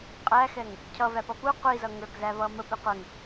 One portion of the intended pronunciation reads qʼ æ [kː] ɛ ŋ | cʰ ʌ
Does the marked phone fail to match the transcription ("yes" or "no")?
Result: yes